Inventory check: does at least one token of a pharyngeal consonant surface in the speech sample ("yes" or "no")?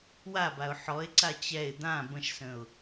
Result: yes